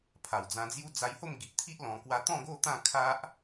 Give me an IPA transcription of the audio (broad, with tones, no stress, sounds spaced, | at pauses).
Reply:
pʰ a˨˩ w d͡z ã˧ d͡z j u˦ d͡z a˧ j h o˥˧ m ɡ i˨ ʔ t̪ʰ i˦ ʔ l ɔ̃˧ k w a˦ t̪ ɔ̃˥˧ ɡ o˥˧ t̪ ã˥˧ kʰ a˦ ʔ